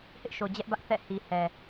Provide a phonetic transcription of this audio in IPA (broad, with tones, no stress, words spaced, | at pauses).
hɪ˦ʔʃo˨d͡ʑɛ˦ʔbä˦ʔ θɛ̰˦˨ hi˨ hɛ˨